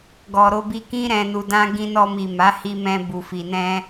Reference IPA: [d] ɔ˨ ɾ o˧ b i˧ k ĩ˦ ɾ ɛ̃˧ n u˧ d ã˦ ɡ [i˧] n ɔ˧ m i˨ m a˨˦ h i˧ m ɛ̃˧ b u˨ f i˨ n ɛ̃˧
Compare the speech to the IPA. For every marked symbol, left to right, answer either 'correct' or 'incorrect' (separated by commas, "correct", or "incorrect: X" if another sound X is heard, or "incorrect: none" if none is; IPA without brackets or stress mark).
incorrect: ɡ, incorrect: ĩ˧